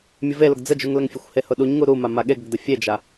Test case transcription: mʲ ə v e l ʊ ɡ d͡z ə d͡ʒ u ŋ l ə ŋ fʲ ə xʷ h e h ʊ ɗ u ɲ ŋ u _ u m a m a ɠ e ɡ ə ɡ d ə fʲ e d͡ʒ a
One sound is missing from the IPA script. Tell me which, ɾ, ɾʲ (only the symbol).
ɾ